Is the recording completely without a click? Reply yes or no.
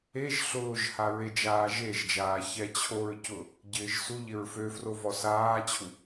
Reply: yes